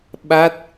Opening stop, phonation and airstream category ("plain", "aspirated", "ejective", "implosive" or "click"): implosive